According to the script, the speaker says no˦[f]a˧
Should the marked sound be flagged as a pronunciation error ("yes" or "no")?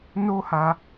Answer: yes